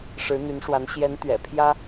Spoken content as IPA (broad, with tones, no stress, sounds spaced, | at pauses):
ʂ ɻ̩˧˥ n̪ y˧˥ n ʂ w a˧˥ n ɕ j ɛ˧˥ n t̪ ɥ ɛ̰˨˩ pʰ j ä˥